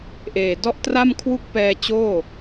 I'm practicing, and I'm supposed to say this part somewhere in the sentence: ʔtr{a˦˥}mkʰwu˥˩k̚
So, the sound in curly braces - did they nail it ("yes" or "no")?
no